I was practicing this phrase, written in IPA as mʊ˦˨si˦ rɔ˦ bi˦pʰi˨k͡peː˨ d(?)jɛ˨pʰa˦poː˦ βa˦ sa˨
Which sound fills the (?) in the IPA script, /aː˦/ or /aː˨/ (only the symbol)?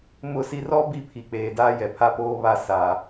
aː˦